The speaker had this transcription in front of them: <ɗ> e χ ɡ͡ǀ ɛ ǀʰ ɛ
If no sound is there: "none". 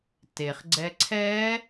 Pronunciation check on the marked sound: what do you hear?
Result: t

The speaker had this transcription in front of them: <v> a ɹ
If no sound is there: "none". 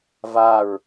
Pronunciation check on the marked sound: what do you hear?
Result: v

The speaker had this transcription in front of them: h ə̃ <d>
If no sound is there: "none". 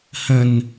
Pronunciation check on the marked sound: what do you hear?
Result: n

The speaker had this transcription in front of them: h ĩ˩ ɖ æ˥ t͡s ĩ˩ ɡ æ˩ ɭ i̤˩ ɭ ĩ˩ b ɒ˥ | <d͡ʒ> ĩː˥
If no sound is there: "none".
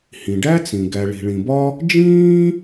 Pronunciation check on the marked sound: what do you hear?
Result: d͡ʒ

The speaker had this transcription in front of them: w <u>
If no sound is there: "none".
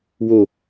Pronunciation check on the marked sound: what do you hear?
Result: o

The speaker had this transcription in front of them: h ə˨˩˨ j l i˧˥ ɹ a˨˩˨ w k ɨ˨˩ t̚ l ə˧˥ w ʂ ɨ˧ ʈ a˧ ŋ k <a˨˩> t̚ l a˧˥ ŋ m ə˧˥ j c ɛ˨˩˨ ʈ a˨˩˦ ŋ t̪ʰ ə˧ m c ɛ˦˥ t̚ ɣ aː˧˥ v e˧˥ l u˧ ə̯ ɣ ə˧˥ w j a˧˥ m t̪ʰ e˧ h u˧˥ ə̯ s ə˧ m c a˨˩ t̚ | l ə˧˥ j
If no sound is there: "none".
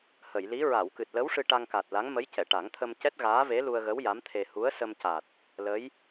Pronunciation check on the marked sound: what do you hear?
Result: a˨˩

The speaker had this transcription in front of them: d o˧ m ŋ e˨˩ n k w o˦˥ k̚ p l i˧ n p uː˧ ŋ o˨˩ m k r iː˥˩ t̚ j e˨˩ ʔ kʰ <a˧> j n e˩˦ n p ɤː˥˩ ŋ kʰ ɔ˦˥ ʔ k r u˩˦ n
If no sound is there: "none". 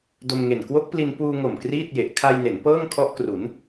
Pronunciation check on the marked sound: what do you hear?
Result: a˧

